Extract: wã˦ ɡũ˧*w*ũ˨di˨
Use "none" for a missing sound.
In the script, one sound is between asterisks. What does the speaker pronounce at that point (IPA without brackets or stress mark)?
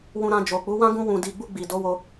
w